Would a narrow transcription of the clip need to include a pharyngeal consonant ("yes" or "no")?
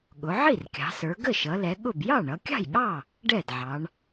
yes